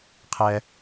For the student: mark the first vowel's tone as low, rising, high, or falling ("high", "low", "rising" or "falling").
high